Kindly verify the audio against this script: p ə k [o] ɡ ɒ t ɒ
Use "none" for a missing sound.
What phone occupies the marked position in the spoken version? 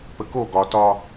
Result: o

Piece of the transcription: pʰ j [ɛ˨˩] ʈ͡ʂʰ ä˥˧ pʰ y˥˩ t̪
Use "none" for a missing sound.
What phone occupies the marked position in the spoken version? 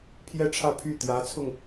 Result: ɛ˥˧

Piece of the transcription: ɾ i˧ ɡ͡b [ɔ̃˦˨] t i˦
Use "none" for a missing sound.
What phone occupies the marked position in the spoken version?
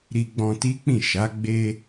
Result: ɔ̃˧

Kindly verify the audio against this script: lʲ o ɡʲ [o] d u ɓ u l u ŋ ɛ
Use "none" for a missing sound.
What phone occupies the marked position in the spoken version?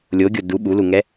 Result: o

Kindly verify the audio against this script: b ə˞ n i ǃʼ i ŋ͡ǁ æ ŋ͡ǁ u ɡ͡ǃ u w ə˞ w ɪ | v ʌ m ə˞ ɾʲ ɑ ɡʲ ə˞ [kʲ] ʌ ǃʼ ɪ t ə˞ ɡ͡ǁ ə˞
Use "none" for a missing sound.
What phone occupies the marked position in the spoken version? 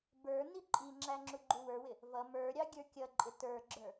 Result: kʲ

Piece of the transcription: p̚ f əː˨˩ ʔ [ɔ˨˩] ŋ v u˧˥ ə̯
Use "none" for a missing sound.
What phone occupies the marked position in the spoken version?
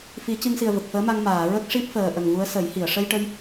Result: ə˨˩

